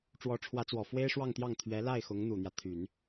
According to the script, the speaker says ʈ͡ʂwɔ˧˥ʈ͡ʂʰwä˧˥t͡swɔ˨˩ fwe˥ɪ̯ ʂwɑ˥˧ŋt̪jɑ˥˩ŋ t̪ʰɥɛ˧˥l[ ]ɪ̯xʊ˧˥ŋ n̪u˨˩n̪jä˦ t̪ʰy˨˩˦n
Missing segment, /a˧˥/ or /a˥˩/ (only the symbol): a˥˩